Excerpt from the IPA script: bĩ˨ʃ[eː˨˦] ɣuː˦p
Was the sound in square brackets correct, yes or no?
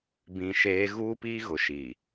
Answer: yes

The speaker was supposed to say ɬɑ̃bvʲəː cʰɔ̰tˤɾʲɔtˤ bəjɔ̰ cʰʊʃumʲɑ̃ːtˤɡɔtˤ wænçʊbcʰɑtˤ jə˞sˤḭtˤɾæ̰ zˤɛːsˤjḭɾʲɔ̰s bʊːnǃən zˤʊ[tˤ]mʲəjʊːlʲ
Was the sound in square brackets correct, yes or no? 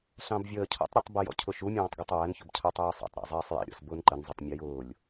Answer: yes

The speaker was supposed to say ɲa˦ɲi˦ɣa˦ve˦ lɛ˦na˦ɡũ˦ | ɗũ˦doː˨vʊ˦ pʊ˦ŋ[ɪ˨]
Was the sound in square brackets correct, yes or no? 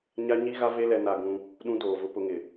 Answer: yes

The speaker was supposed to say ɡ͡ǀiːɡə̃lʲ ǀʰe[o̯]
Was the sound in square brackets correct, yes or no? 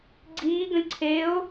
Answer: yes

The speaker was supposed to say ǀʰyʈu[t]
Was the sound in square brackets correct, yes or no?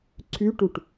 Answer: no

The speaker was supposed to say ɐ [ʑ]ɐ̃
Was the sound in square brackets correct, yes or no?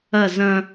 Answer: no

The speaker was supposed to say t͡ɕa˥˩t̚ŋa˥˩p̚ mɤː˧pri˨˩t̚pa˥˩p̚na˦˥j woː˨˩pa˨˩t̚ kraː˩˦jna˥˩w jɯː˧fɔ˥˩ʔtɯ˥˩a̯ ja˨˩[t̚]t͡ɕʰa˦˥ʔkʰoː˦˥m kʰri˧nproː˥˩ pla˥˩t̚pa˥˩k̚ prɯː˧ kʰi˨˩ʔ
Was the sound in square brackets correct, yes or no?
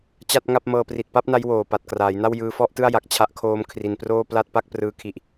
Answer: no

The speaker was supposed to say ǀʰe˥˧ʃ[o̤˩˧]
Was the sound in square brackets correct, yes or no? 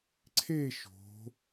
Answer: yes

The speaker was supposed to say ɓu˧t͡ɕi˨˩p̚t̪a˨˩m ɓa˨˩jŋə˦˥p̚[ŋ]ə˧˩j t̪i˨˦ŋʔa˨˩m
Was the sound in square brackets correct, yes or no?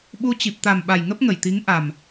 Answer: yes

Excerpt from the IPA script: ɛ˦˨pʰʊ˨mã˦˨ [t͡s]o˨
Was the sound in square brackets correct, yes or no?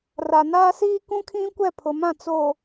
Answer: yes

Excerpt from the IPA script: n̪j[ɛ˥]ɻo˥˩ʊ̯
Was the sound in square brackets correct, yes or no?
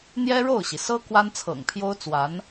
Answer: yes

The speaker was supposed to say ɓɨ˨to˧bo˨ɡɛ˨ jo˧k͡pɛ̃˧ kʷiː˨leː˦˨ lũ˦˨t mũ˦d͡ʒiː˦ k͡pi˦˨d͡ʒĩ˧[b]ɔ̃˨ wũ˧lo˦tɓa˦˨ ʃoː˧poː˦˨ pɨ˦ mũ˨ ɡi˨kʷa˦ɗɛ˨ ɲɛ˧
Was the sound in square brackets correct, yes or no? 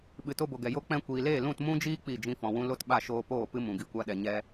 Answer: no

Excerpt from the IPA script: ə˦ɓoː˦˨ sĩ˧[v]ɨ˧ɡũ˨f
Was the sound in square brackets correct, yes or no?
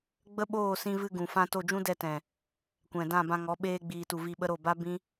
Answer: yes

